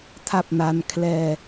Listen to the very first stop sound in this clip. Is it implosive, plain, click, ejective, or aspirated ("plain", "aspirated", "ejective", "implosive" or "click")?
aspirated